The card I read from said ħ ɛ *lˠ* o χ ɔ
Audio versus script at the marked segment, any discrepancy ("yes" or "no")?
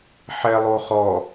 no